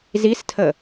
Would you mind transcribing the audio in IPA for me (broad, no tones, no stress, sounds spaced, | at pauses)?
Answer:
z i s tʰ ə